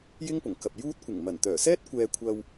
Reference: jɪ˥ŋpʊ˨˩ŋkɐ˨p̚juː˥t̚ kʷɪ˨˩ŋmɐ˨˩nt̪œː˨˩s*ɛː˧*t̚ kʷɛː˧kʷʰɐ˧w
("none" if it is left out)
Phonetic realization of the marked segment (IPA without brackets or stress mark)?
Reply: ɛː˥